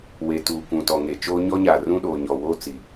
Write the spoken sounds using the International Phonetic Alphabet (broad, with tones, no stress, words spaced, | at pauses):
we˨tuː˨kʷũ˨tɔ˨ ŋe˨t͡ʃoː˦ ɲɔ˦ɲaː˨ rũ˦ɗoː˨ɲɔ˨woː˦ t͡si˨